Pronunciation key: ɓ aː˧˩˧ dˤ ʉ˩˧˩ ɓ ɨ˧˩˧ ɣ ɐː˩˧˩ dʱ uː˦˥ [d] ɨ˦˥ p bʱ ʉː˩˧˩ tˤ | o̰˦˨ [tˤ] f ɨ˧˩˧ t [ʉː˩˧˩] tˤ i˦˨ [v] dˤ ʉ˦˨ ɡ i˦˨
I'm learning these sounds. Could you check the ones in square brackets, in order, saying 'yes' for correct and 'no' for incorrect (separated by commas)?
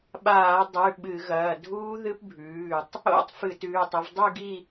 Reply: no, yes, yes, yes